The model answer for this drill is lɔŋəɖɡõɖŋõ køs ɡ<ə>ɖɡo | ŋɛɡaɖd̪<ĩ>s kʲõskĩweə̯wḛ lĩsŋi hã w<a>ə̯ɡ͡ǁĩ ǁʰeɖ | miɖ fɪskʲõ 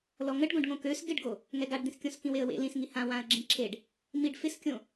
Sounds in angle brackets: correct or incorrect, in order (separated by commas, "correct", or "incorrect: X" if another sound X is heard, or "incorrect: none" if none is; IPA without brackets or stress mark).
incorrect: ɪ, correct, incorrect: ã